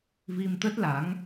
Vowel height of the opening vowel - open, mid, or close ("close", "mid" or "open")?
close